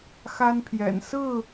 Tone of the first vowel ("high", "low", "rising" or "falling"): high